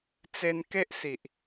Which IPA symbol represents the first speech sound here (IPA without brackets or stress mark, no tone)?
t͡s